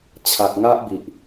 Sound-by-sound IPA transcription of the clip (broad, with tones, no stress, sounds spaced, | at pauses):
t͡ɕʰ a˨ k̚ ŋ a˦ ʔ b i˨ ʔ